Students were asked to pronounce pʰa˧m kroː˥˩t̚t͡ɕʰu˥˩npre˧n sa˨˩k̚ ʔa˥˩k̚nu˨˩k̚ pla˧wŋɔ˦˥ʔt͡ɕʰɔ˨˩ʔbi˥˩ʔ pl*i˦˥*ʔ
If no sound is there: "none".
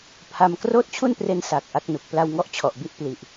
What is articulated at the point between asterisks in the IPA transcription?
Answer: i˨˩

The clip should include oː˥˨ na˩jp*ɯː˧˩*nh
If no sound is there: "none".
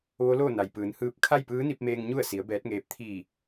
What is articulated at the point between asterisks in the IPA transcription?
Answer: ɯː˩˧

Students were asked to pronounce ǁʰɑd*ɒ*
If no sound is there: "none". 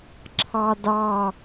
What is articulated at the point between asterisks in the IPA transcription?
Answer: ɑ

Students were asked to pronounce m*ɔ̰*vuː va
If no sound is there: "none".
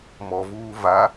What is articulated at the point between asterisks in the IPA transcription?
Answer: ɔ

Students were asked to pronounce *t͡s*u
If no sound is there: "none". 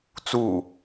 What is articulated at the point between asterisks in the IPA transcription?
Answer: t͡s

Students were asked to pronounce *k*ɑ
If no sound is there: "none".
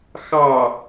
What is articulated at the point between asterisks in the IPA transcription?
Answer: x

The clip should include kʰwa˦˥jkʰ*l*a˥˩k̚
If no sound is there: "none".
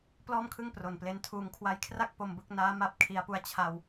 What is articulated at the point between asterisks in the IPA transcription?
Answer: r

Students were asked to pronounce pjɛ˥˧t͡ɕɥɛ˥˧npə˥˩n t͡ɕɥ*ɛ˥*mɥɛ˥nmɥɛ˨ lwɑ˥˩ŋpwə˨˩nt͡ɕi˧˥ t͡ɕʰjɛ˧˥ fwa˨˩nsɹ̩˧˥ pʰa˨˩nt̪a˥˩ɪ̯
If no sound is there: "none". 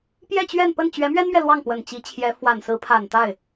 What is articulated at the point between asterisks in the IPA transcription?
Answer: ɛ˧˥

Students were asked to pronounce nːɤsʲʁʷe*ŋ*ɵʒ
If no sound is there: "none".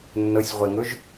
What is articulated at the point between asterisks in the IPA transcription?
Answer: ŋ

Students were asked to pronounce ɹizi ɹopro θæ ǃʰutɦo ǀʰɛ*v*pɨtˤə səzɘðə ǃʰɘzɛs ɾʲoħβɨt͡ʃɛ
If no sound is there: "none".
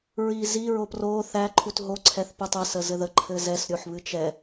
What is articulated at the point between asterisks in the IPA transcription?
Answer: θ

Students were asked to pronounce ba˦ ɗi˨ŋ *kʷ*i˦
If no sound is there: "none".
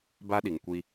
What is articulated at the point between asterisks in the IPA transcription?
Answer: kʷ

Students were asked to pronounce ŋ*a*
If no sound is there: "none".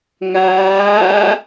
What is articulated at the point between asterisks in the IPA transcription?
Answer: aː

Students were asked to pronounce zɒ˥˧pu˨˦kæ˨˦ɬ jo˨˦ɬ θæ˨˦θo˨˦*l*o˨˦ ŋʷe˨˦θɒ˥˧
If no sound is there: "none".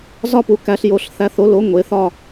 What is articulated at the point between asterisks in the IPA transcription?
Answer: l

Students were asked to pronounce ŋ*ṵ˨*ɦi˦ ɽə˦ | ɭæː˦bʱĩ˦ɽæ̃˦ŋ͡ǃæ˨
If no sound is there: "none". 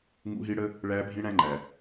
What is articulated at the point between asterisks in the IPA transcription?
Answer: ṵ˦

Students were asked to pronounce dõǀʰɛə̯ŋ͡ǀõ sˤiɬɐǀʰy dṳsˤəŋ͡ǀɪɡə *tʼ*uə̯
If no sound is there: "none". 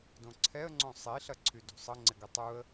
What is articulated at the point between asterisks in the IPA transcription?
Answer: tˤ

